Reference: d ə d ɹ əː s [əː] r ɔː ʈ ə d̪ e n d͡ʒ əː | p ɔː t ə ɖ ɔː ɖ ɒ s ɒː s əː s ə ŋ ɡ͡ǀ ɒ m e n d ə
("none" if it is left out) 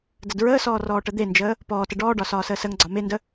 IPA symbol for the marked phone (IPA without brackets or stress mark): ɔː